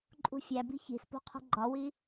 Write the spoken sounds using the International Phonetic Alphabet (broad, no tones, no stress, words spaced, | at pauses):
ǃʼṳfʲæbi̤ çi̤spo̤ qʰo̤ɡ͡ǃɒwi